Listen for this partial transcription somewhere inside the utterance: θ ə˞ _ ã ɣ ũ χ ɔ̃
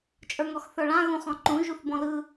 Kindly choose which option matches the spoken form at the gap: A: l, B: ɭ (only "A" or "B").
B